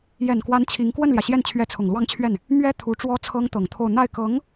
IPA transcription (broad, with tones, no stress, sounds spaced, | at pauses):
j ɛ˨˩ n k w a˧˥ n t͡ɕʰ i˧˥ ŋ k w ə˥˩ n l j ä˩ ɕ j ɛ˥˩ n t͡ɕʰ ɥ ɛ˧˥ t͡sʰ ʊ˨˩ ŋ l w ɑ˥˧ ŋ t͡ɕʰ ɥ ɛ˥˩ n | m ɥ ɛ˥ t̪ʰ u˧˥ ʈ͡ʂ w ɔ˥ t͡sʰ ɤ˥ ŋ t̪ ɤ˨˩ ŋ t̪ʰ o˥˧ ʊ̯ n̪ a˥˩ ɪ̯ k ɤ˧˥ ŋ